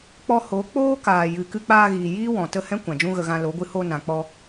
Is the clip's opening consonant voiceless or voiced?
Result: voiceless